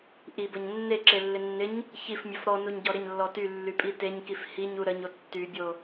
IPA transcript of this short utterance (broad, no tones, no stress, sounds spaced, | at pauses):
ʔ i b ə ɲ nː e ǁ e lː ɪ nː ɪ ɲ | ç i f mʲ ə f ɾ ɔ n u ɲ ɟ ɔ ɾ ɪ ɲ lː ɔ t y lː y pʼ i t e ɲ k i f h i ɲ u ɾ ə ɲ o tː y bʲ o